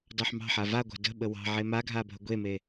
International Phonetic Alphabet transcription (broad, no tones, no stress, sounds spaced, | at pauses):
d ɑ ħ m ɑ̤ ħ a v a ɡʷ a̤ d ə̤ ɓ ə w ɑ̤ ʕ e m a ɡʱ a bʱ ə ɡʷ e m e